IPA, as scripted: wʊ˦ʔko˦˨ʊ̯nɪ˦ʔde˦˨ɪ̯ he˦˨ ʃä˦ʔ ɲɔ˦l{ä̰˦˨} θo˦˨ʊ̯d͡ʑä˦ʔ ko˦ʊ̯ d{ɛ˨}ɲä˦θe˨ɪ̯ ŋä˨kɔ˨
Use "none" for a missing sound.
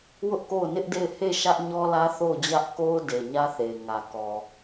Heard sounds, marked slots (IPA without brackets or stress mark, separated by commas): ä˦, e˨